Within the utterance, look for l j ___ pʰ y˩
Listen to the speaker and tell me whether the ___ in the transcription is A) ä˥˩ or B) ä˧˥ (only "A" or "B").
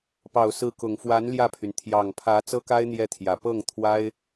A